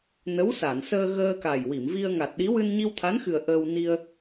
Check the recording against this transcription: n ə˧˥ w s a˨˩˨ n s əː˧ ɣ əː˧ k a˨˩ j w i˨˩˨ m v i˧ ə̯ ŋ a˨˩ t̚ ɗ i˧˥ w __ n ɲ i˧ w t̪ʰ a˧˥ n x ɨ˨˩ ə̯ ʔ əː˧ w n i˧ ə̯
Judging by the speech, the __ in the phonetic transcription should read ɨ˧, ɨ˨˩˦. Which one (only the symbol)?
ɨ˧